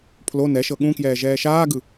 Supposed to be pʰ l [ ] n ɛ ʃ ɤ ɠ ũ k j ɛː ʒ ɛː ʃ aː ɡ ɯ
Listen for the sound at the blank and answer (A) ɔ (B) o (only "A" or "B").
B